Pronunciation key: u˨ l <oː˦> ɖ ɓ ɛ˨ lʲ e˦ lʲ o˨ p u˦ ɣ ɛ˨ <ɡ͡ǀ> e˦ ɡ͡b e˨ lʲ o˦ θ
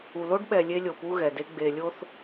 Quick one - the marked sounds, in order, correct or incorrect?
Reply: incorrect, incorrect

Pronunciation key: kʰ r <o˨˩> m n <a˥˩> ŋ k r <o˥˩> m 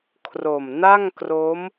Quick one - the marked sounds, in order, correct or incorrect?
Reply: correct, correct, incorrect

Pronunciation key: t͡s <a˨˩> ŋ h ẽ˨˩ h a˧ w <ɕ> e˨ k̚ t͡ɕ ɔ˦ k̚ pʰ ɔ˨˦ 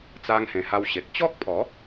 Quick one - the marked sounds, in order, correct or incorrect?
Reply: incorrect, correct

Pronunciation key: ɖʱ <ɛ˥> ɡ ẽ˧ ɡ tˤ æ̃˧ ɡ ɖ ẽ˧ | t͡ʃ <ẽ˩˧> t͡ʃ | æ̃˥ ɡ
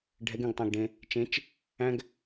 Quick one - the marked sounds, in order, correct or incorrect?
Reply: incorrect, incorrect

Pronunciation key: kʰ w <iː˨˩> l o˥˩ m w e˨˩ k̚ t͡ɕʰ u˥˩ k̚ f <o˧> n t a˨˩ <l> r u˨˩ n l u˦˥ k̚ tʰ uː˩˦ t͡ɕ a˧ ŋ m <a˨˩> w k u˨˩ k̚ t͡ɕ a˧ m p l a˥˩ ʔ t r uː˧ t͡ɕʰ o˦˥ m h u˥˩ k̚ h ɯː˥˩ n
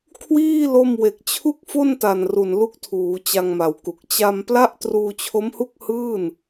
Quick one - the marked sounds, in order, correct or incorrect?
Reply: incorrect, incorrect, incorrect, correct

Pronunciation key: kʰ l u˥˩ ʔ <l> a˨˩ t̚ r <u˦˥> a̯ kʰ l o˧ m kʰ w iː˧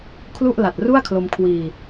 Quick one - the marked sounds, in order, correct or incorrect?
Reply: correct, incorrect

